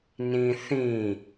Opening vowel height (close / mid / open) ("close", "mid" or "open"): close